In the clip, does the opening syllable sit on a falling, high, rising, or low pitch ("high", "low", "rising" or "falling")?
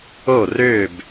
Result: falling